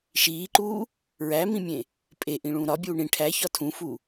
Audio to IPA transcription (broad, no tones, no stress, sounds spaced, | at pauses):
ʃ iː ǃ uː | ɹ æ m ĩ mʲ ẽ | pʼ e ʔ ĩ ɭ ũː ɾ ɒ bʲ uː ɳ ĩ ʈʰ æ ç ɒ tʰ ũ f u